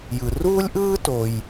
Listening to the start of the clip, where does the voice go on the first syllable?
low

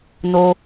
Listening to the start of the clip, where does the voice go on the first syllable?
low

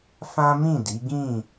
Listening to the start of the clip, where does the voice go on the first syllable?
high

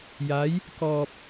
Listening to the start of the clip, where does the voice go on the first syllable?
rising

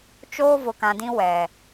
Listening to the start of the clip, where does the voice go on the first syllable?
high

